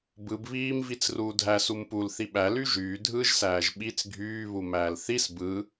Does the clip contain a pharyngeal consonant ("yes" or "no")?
no